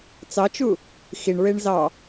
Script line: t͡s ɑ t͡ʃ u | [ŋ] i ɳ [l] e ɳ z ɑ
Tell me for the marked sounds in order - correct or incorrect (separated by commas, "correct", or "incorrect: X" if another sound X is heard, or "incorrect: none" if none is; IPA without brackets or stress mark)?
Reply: incorrect: x, incorrect: ɹ